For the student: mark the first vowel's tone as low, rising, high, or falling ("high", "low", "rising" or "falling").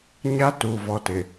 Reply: high